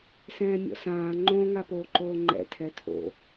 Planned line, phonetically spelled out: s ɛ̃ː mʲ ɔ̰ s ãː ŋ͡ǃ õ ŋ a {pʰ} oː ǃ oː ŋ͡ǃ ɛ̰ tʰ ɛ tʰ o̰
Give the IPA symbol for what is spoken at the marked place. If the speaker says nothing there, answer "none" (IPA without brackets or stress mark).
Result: p